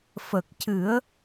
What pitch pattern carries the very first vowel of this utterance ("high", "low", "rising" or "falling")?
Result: low